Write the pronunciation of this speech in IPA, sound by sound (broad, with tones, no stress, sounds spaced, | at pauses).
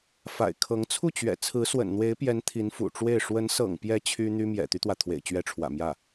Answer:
f a̰˨˩ ɪ̯ kʰ ɤ˧˥ ŋ t͡sʰ u˥˩ t͡ɕ ɥ ɛ̰˨˩ t͡sʰ ɹ̩˧˥ s w ə̰˨˩ n n̪ w e˧˥ ɪ̯ p j ɛ˧˥ n t̪ʰ i˧˥ n f ṵ˨˩ ʈ͡ʂ w e˥˩ ɪ̯ ʂ w ə˧˥ n s ɤ̰˨˩ ŋ p j ɛ˧˥ t͡ɕʰ y˥ n̪ y˥ m j ɛ̰˨˩ t̪ y˦ t̪ w ä˩ t̪ʰ w ḛ˨˩ ɪ̯ t͡ɕ ɥ ɛ˧˥ ʈ͡ʂʰ w ä̰˨˩ m j ä˥˩